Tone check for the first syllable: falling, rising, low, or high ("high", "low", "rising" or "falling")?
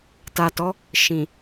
low